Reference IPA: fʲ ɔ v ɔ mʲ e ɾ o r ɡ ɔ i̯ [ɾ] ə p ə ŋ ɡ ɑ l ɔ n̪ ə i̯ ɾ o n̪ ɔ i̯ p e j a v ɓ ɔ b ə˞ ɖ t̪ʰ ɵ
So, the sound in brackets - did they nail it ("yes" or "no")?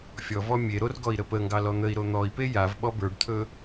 yes